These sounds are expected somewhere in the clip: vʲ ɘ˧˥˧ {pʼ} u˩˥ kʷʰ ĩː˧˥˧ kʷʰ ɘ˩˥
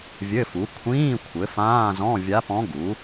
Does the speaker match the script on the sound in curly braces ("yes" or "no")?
no